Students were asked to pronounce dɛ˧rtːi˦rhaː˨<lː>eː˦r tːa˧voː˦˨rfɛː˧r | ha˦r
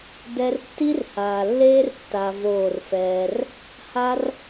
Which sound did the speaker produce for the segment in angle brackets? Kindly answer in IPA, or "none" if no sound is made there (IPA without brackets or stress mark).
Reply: lː